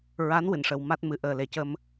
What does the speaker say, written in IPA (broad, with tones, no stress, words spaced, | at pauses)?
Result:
ɹa˧˥nwɨ˨˩˨nʂə˨˩w ma˦˥t̚mɨ˨˩ ʔəː˨˩le˨˩cə˧m